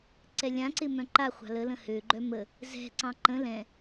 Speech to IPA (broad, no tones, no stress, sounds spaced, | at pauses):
ǀ ɛ lʲ ã ǀ ɪ m œ̃ ǃ a χʷ ɑ̤ l ə l ə̃ h ø ɡ͡ǃ œ m ə | z ɛ̤ ǀ ɑ̃ ǃ ə̃ l ɛ̃